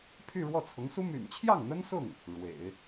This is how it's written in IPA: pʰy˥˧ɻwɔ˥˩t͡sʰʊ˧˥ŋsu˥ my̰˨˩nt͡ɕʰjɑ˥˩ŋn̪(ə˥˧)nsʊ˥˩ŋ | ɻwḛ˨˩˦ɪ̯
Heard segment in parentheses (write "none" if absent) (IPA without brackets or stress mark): ə˥